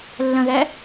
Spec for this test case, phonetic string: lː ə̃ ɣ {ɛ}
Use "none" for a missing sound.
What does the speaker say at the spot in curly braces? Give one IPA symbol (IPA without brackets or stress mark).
ɛ